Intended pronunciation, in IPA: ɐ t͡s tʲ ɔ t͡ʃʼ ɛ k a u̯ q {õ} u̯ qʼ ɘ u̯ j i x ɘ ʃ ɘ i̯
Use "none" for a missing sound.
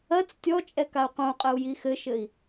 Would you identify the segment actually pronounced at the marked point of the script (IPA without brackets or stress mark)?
õ